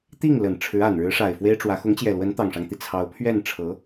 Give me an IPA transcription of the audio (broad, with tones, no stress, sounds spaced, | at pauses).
t̪ i˥˩ ŋ l ə˨˩ n ʈ͡ʂʰ ɻ̩˧˥ a˨˩ n ɻ ɻ̩˧˥ ʂ a˨˩ ɪ̯ f w e˥ ɪ̯ ʈ͡ʂ w ä˧˥ x ʊ˧˥ ŋ t͡ɕ j ɛ˨˩ l w ə˧˥ n t̪ ɑ˨˩ ŋ ʂ ɑ˦ ŋ t̪ i˩ t͡sʰ ɑ˧˥ ʊ̯ pʰ ɥ ɛ˥˩ n ʈ͡ʂʰ ɤ˧˥